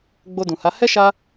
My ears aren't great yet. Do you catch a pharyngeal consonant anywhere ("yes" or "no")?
no